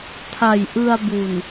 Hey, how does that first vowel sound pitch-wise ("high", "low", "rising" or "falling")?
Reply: low